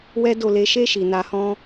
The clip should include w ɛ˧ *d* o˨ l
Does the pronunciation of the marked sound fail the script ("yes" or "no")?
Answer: no